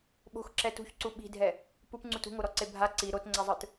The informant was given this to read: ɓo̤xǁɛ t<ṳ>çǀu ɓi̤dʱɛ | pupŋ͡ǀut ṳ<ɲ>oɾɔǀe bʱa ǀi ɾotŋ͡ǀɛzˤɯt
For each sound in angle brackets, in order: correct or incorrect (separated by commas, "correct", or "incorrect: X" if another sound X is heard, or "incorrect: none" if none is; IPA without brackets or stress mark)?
correct, incorrect: ŋ